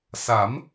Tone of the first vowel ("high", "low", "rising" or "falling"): rising